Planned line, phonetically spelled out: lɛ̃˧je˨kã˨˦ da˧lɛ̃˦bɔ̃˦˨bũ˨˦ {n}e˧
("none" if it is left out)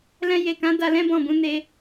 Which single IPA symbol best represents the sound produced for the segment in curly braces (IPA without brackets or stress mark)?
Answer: n